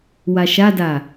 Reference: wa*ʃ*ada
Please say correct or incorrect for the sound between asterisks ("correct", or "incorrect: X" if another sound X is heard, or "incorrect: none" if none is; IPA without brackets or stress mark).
correct